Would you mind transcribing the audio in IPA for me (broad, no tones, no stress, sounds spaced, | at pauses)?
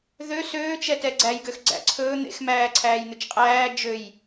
ð ø s øː t͡ʃ ɛ t ɛ ɡ͡ǀ æ j ɡ ø x ɡ͡ǀ æ̰ ǀʰ ɵː n̪ ḛ x m æː ǀʰ æː j n̪ ʉ t͡ʃ qʼ æː d͡ʒ ø j